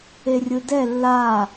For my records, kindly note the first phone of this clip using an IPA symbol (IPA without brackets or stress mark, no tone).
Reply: e